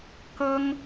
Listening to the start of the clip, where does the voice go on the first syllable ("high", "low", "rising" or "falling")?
high